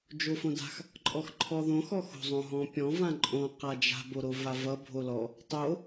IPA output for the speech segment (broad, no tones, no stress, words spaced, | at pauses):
d͡ʒofõda̤x | ǃʼɔxǃʰɔðõx ɔxo̤ zˤõɦɔ̃pʲɔ̃ vãǃʼõ qad͡ʒa̤ boɾovavʌ bʱolɔ | tˤo